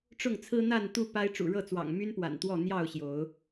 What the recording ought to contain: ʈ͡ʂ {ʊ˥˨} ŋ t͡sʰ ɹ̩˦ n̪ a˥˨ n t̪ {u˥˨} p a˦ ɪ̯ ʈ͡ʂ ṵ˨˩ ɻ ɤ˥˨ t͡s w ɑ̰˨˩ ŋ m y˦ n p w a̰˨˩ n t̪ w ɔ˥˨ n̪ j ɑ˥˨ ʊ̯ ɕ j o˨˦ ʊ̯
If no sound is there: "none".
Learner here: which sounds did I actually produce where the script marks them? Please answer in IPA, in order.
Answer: ʊ˥˨, u˥˨

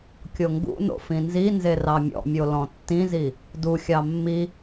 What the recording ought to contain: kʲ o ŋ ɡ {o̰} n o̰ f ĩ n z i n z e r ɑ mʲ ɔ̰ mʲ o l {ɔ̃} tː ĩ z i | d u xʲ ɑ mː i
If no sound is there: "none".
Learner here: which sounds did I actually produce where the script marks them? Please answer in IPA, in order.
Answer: ṵ, ɔ̃

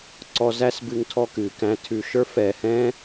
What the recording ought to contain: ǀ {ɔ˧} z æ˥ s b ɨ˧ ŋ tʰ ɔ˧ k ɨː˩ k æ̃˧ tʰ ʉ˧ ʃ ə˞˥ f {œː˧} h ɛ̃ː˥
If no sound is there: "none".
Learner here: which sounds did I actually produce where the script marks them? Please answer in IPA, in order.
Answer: ɔ˧, ɛː˧

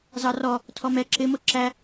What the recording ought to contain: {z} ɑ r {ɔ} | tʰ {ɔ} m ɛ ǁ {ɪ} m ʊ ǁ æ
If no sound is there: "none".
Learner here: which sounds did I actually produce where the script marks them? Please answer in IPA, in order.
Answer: z, ɔ, ɔ, ɪ

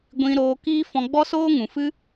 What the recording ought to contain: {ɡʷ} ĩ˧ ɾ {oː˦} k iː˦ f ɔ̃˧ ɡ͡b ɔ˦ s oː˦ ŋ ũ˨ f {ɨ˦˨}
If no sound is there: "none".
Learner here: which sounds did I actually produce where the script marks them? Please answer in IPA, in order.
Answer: ɡʷ, oː˧, ɨ˦

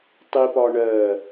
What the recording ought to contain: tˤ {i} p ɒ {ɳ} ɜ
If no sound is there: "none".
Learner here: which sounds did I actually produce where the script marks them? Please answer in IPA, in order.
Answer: i, ɳ

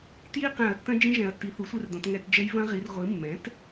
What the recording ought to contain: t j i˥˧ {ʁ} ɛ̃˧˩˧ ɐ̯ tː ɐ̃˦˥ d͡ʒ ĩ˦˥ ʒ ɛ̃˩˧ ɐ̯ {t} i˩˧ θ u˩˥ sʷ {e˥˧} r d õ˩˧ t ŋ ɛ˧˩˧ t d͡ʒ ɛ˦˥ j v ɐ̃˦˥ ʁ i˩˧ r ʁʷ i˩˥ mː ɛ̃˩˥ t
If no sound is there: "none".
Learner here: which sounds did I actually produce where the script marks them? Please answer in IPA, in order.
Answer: q, tː, e˥˧

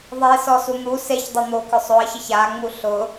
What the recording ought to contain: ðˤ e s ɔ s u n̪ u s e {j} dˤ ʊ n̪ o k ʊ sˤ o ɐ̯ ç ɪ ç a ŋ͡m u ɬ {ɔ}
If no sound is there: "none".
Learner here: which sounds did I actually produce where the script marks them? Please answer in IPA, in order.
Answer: ç, ʊ

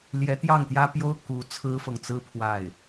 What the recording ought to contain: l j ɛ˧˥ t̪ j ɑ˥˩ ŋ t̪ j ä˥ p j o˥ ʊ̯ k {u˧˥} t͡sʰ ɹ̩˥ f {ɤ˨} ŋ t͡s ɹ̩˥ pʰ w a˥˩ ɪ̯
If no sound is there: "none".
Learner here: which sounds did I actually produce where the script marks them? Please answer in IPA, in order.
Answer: u˧˥, ɤ˨

